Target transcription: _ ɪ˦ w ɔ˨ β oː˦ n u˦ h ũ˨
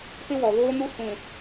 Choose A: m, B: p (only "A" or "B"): B